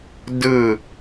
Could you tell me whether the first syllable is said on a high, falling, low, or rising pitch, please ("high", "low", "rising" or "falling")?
falling